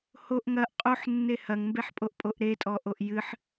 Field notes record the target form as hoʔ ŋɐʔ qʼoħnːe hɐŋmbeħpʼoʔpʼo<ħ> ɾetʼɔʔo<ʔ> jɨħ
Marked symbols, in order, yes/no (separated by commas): no, yes